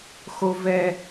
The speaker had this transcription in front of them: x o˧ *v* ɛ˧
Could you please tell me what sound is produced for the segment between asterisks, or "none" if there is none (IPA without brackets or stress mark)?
v